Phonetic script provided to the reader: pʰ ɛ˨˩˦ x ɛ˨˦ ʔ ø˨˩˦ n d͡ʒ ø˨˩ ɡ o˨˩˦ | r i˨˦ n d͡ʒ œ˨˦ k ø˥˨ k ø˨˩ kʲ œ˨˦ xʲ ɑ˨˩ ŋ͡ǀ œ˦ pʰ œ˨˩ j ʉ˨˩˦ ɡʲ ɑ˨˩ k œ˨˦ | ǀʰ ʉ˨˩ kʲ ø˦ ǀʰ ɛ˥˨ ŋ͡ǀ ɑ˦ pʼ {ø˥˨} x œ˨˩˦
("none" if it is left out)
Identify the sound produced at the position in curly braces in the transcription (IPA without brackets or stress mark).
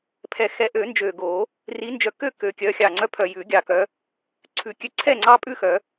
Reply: ʉ˥˨